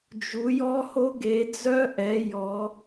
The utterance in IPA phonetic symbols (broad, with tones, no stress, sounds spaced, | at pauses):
d͡ʒ u˩˧ j ɔ˦˥ h o˦˥ ɡ e˩˧ d͡z œ˦˥ ʔ ɛ˩˧ j ɔ˩˧